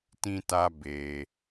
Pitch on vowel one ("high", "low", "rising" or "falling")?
high